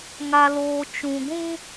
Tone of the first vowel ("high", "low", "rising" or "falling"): low